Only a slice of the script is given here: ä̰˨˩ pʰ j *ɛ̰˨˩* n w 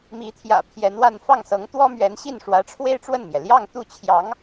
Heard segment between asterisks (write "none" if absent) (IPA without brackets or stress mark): ɛ˧˥